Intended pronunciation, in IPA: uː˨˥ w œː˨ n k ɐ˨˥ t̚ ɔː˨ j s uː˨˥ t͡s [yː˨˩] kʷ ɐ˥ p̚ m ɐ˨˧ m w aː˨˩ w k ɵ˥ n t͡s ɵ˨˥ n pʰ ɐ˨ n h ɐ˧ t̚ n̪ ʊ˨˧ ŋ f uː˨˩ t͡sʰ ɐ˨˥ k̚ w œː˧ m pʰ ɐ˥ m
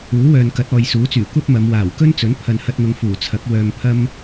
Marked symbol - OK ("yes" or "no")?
yes